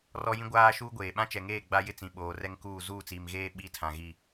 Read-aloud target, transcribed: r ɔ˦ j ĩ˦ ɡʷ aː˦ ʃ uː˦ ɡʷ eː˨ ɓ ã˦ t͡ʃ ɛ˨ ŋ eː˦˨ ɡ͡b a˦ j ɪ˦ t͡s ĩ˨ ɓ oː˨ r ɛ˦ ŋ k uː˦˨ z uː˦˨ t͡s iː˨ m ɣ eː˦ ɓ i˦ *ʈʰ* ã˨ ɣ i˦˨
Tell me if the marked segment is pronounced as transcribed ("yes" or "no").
no